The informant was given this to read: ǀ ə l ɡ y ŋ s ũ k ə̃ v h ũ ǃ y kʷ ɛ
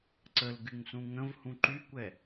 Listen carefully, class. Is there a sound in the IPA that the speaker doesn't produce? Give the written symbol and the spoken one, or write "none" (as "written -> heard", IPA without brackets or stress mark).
k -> ŋ